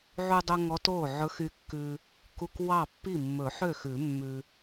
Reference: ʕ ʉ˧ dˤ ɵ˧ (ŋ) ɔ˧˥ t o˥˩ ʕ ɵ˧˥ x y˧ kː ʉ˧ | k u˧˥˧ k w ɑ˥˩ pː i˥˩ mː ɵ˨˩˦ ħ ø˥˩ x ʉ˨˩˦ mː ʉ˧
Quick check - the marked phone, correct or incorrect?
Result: correct